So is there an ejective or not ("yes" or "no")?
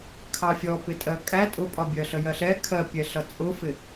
yes